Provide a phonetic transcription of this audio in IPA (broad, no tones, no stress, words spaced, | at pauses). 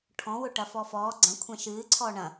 ʈʰɔ̃wʊ ʈɐfɔfɔː ɡ͡ǀɐ̃kʷʰɛ̃ ʃɨːǀʰɔː ɳɐ̃